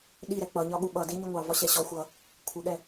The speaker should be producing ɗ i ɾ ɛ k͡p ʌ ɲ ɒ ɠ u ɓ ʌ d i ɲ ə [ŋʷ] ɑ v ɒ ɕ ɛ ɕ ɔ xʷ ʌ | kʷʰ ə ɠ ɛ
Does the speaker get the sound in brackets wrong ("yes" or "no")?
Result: no